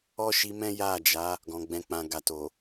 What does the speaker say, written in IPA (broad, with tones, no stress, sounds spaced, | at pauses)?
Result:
ɔ˦ ʃ i˧ m ɛ̃˦ j a˦˨ d͡ʒ a˨˦ | ɡ ɔ̃˨ ɡ͡b ɛ̃˨ k͡p ã˨ ɡ a˨ t o˨